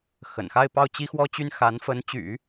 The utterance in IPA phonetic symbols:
xə̰˨˩nxa˥˧ɪ̯ pɑ˥˩ʊ̯t͡ɕi˥xwɔ˥t͡ɕy˥n xa˧˥nfə˧˥nt͡ɕy̰˨˩˦

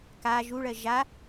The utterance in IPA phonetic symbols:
ka ʒuɭɜ ʒa

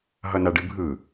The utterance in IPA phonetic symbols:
ɦʌnaɖɨbʱɯ

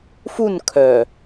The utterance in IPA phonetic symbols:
fun kʰœ

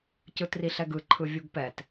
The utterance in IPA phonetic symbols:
cɯtriɬɛɡɯ ǃʰɯvʲuɡpɛt

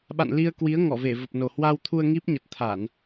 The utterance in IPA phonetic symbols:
ɓa̰˧˨nli˧ə̯ kwi˨˦ə̯ ŋɔ˧˩ve˧˩və˨˩p̚no˨˩ hwa˧wt̪ʰu˧ə̯ ŋi˦˥p̚ ɲə˨˩t̚t̪ʰa˧˩˨n

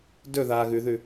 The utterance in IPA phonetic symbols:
dɵðaː ɣʉðʉ

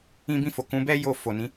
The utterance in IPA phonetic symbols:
ĩ˧bĩ˧fo˨ kũ˨˦bɛ˦ jo˧fo˨ nĩ˨˦

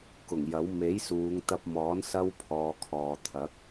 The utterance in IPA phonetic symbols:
kʊ˨˩ŋjɐ˨˥w me˨˥jsuː˨˧ŋ t̪ɐ˧p̚mɔː˨˥n sɐ˥wpʰɔː˨˧kʰɔː˨ t̪ʰɐ˨˥k̚

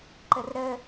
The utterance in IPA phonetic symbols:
ǃərɾə

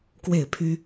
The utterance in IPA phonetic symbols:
kwe˥˨ɪ̯pʰy˦

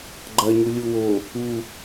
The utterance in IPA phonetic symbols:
ɡ͡ǃɐɲu lʲuwo | u

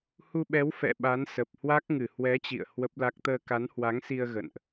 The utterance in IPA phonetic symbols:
hu˧ɓɛ˨˦w fɛ̰˧˨ɓa˨˦nsə˨˩p̚ hwa˦˥k̚ŋɨ˧˩ hwɛ˨˦ t͡ɕḭ˧˨ə̯ hwə˦˥p̚la˦˥k̚ t̪əː˧ka˨˦nhwa˨˦ŋsi˧ə̯ ɣə̰˧˨nʔ

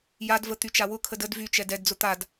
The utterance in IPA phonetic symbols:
jadvət̪yt͡ʃa wʊkʰəd əd vyt͡ʃɛd ɛdd͡zʊ t̪ad

